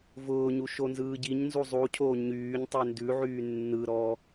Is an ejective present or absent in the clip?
absent